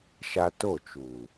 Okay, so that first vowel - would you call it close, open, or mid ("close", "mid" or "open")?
open